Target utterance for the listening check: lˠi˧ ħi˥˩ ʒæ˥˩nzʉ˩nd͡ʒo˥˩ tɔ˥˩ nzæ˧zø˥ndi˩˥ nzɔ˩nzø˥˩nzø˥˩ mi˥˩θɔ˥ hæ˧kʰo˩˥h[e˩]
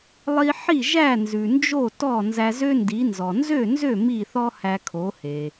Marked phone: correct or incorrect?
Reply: correct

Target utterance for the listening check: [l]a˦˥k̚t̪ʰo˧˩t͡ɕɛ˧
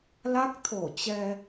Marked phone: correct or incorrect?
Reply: correct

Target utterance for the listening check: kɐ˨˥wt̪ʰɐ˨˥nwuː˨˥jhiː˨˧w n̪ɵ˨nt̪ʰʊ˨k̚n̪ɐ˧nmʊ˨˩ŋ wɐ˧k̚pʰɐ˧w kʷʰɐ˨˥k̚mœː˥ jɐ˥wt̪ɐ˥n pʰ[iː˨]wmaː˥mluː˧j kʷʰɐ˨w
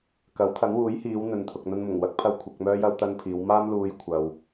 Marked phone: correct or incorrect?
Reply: incorrect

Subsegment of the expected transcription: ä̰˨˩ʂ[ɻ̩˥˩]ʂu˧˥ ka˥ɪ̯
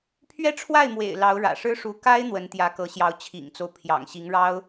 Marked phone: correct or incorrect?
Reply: incorrect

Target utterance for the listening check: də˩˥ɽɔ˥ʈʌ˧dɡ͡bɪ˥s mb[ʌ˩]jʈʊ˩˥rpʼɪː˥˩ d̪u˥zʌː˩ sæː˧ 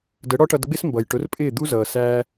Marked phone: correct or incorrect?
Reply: correct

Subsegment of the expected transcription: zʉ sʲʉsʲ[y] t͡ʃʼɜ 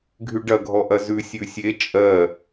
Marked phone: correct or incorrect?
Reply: incorrect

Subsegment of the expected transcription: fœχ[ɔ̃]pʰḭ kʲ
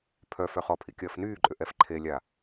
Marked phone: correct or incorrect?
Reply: incorrect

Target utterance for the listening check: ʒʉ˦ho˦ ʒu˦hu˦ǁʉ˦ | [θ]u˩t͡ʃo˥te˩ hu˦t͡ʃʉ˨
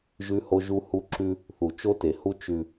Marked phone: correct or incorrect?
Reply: correct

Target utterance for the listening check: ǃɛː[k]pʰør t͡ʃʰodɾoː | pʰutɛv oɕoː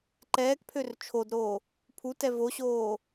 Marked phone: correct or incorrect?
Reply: correct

